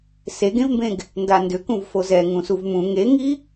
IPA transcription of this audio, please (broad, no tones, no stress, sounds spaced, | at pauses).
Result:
s e ɡ ẽ v m b ẽ ɡ | n d a n d ʏ k ũ v f o z ɛ ŋ ũ s u v m ũ ŋ e ŋ i